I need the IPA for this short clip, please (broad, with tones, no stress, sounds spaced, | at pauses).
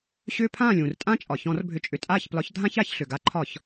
ɕ ʏː˦ pʰ ãː˥˨ lʲ ũː˩ r tʼ ã˦ t͡ʃʼ ɒ˩ ç ɔ̃˧˩˧ r bʱ ʏ˧˩ t͡ʃʼ ʏ˧˩ tʼ aː˥˨ ç p l ɒ˨˥ ç dʱ ã˦ ç a˧˩˧ ç ɬ ʏ˩ ɡ a˨˥ ǃʰ ɒ˧˩˧ ç